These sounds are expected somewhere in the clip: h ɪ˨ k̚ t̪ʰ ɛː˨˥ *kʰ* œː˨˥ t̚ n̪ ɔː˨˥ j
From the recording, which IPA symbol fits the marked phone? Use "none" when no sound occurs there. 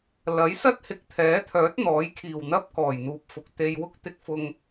t̪ʰ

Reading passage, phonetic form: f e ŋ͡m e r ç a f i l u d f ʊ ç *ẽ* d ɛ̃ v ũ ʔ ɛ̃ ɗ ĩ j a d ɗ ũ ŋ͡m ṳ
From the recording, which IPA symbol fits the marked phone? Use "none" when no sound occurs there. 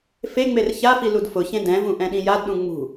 ẽ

